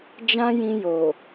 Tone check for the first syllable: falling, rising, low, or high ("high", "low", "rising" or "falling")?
high